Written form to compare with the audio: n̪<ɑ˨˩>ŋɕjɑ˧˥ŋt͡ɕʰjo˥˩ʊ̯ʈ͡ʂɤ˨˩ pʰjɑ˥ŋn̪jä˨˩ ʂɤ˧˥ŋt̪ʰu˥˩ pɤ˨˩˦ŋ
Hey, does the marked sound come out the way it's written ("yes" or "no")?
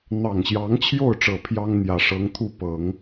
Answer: yes